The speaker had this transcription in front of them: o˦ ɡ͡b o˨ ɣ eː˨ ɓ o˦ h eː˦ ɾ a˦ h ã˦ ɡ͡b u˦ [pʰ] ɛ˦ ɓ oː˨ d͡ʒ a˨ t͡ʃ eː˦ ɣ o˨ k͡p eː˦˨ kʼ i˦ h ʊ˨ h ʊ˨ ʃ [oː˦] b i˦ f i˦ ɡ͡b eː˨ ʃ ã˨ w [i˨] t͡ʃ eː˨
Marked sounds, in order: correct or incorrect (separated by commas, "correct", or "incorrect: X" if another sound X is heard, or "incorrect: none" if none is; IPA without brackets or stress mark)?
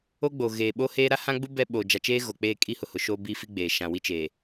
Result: incorrect: b, correct, incorrect: i˦